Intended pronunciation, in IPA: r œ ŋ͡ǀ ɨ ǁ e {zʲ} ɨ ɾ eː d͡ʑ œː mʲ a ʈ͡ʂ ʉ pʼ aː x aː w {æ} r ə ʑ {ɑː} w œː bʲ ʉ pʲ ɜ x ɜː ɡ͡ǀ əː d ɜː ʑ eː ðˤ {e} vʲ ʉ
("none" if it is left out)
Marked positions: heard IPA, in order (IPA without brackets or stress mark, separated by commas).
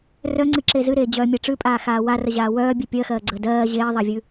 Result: z, a, aː, e